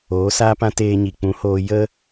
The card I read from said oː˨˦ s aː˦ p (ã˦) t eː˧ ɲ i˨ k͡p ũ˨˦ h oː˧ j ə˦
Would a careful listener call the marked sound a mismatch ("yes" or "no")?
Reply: no